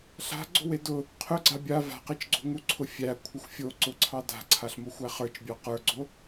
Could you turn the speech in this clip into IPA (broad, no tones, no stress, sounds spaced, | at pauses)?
ɬ a̤ ɡ͡ǀ o̤ w e d ʊ | qʰ ʊ ɡ͡ǀ a bʲ a v a̤ q e t͡ʃ ɡ͡ǀ o̤ ŋ u ǀʰ ʊ fʲ æ kʷʰ ə xʷ fʲ o ǀ ʊ ǀʰ ɑ d a̤ ǀʰ a ɬ m o xʷ æ χ ə˞ t͡ʃ bʲ ɑ q ə˞ ɡ͡ǀ o